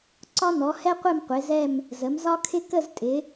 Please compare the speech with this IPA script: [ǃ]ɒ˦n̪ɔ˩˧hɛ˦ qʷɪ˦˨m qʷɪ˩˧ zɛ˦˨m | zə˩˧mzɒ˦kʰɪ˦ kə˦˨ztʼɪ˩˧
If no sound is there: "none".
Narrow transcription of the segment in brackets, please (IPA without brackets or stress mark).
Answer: ǀ